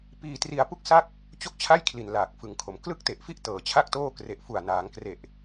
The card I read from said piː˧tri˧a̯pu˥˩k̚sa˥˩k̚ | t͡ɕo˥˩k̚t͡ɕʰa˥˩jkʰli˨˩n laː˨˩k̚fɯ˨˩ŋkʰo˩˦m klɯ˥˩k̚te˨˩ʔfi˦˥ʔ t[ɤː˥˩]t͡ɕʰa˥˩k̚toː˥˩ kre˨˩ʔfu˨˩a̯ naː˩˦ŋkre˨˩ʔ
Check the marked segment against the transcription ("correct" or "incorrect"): incorrect